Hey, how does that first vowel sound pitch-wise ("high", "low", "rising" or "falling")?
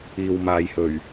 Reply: low